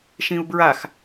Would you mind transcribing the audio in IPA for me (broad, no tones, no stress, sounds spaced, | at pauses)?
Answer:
ʃ ĩ u̯ b ɹ a x